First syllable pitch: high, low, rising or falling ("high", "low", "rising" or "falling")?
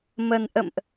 low